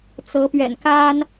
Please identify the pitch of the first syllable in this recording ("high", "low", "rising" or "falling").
rising